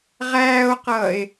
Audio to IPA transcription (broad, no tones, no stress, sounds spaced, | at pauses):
ʁ æː o̯ q ʌː e̯